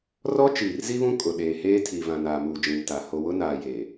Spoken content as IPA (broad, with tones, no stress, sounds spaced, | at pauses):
r ɔ˦ t͡ʃ iː˨ r z i˦ β ũ˦ kʼ ʊ˨ ɗ eː˨ h eː˦ tʰ i˨ v ã˨ n aː˨ m uː˨ d͡ʒ ĩ˨ m t a˨ h o˨ w ʊ˦ n aː˨ j e˨